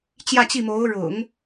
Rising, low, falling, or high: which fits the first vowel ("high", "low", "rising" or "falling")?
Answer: falling